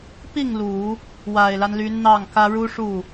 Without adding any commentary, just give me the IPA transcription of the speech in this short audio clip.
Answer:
pi˥˩ŋ lu˨˩˦ | wa˨˩ɪ̯la˦nly˧˥n n̪ɑ˥˩ŋkä˥ ɻu˥ʂu˥˩

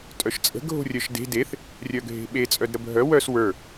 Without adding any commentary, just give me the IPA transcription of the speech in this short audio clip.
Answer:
tʼœʃt͡sʼə̤ ɡʱo̤rʲœʃde̤ deθ | rʲœɡʱe̤ɓe t͡sʼœdɾəbʱœ wœs wə˞

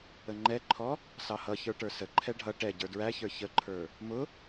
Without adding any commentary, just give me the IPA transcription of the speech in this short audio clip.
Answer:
əŋ͡ǃɛǃʰɔ | sɑhʌçə˞ ʈə˞səǃʰɛ ɖʱʌ ʈɛ ɟə˞dɹæçə˞ çəǃʰə˞ | mʊ

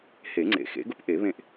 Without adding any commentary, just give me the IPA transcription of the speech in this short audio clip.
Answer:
he˨˩˦ŋ͡ǀḛ˨˩˦xḛ˩˥ɡʊ˦p ʔe˨˩˦βẽ˦˨ʔ

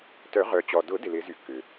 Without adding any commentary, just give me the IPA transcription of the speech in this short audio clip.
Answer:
tœ˨˩˦ ʁœ˩t͡ɕɔ˩dʊ˨˩˦ dɪ˩lɪ˨˩˦zy˨˩˦kːʏ˩

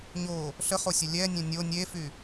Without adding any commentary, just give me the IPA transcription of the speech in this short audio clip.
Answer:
ɲo | ɬəχosʲə lʲɛnʲɛ̃ nʲo nʲefy

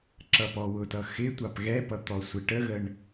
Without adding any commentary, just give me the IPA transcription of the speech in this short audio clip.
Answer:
ǁʌpɔwʊtʌ xɪ tʷɑpɣɛpʌ t̪ɔsʷɪʈəɣəɳ

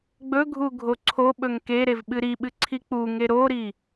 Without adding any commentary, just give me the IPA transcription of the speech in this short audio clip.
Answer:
ɡ͡bɵɡʱu ɡʱoǀʰo ɓɵŋkeɾev ɓɨɾiɓɨ ǀʰik͡puŋe ɾoɾi

